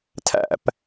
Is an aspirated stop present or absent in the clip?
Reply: present